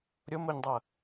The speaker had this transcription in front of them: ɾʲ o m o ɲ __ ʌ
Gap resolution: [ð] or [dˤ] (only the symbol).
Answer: dˤ